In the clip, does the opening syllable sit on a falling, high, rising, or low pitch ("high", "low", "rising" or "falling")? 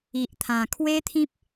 low